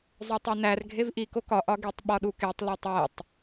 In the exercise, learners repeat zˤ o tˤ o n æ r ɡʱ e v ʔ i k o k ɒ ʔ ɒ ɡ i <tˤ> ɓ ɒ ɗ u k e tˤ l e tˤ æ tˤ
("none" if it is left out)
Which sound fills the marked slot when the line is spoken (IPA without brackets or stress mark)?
tˤ